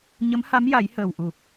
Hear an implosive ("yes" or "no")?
no